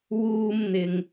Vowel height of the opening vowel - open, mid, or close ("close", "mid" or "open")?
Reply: close